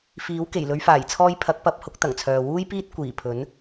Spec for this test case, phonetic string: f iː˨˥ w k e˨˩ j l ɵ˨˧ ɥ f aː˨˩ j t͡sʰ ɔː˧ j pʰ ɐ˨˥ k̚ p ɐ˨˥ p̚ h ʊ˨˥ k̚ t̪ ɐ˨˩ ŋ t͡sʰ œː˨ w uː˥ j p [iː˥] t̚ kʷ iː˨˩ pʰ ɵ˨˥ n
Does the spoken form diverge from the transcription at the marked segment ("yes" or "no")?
no